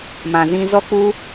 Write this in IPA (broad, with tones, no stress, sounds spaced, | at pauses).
m ã˨ z ĩ˧ z ɔ˦ k͡p u˦